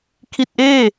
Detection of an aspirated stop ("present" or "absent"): present